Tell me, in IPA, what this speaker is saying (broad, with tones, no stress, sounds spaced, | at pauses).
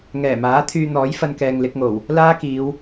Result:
ŋ ɛː˨˩ m aː˨˥ t̪ʰ yː˧ n̪ ɔː˨˥ j f ɐ˥ n k ɛː˧ ŋ l ɪ˨˥ k̚ ŋ o˨˩ w | l aː˥ k iː˨˧ w